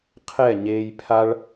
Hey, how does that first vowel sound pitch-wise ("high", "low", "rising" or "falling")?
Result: falling